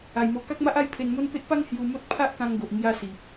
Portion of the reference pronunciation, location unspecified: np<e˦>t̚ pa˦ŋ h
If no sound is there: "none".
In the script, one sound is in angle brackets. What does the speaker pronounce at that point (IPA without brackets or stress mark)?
e˦